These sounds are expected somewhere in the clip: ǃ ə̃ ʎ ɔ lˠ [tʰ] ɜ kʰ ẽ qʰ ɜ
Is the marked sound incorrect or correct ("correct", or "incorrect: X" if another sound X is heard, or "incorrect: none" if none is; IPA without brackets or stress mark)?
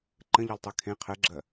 incorrect: tˤ